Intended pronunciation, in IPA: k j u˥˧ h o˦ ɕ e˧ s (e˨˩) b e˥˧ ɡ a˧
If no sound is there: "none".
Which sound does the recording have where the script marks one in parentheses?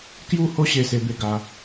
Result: e˦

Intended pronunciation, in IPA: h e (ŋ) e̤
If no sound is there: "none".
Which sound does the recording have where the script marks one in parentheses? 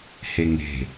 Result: ŋ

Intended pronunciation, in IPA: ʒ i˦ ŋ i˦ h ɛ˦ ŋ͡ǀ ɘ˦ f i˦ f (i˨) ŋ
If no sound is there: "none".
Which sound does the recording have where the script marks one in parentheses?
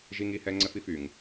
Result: y˨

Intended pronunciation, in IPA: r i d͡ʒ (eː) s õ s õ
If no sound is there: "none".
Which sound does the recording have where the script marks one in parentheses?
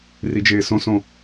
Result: eː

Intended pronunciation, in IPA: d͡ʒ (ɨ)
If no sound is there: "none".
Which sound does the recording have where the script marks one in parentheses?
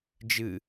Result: ɨ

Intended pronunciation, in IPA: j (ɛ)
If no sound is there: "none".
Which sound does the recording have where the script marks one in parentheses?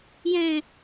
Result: ɛ̃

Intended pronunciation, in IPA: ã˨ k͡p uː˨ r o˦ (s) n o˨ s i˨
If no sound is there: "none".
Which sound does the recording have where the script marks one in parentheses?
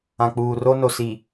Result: none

